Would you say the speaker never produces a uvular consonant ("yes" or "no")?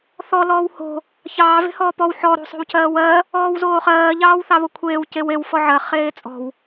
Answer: no